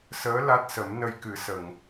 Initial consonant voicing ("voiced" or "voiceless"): voiceless